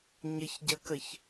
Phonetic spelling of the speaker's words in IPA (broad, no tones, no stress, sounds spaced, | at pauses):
ɲ ə ç ɟ ɐ k ə ç